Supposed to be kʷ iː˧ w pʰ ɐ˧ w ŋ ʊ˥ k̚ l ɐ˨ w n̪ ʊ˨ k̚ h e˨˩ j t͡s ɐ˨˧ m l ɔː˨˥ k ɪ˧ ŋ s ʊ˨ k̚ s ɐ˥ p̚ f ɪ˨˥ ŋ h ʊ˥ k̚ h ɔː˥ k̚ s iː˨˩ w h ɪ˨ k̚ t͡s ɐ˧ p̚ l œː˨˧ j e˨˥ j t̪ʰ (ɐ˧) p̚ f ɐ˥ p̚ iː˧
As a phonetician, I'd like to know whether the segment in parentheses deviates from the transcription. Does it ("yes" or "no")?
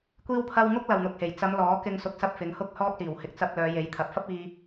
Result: yes